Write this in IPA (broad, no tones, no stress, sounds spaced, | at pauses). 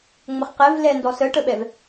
ŋ͡m ə χ q ɛ v l ɛ n d ɔ s ə ʈ ə ɓ ɛ v